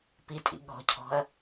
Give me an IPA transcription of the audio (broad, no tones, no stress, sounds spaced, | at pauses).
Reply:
p i tʼ ḭ ɠ ɔ̤ cʰ ɔ̤ ɐ̯